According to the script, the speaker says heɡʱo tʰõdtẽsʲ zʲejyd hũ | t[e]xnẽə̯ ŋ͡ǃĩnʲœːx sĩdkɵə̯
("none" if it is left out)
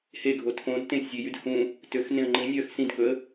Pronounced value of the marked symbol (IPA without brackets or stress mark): ø